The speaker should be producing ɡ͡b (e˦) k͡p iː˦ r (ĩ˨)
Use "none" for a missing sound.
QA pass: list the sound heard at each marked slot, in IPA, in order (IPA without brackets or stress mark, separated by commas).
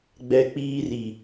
ɛ˦, i˨